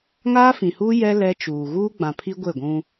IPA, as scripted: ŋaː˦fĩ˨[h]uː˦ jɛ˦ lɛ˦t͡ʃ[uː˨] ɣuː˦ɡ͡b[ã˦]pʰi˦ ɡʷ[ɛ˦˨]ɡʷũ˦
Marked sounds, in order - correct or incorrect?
correct, correct, incorrect, incorrect

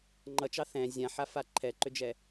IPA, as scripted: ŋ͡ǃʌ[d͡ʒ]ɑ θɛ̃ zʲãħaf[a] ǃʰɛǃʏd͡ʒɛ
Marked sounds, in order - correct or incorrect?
incorrect, correct

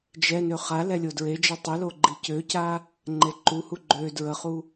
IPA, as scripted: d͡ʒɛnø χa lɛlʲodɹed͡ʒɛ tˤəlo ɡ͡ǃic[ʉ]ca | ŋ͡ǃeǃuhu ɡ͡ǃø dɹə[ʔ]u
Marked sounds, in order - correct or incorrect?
incorrect, incorrect

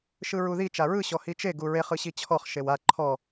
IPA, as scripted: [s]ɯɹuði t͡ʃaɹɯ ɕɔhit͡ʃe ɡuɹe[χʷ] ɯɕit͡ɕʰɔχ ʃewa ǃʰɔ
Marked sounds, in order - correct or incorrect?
incorrect, incorrect

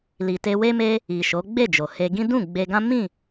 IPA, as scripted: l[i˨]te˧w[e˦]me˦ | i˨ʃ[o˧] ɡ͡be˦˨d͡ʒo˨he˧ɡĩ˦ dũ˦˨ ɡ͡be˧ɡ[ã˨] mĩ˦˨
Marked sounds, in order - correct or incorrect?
correct, correct, incorrect, incorrect

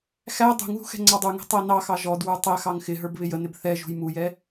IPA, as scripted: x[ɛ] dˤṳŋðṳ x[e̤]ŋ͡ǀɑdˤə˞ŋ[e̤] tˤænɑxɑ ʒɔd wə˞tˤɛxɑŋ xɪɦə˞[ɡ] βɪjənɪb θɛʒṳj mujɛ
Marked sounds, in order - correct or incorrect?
incorrect, incorrect, incorrect, incorrect

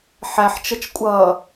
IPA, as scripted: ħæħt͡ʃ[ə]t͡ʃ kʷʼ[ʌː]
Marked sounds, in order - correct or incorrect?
correct, correct

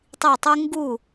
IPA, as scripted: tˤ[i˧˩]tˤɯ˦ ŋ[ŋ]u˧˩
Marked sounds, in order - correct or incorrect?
correct, incorrect

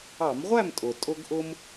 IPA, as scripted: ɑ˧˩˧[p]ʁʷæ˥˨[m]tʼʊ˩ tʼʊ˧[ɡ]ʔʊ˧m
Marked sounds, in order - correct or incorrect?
incorrect, correct, correct

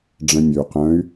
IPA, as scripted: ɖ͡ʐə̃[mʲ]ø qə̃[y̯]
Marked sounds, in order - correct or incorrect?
correct, correct

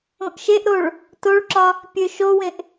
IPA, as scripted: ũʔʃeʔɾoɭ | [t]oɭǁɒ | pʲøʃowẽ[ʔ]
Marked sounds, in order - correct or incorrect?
correct, correct

